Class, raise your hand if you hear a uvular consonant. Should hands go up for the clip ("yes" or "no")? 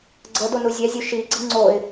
no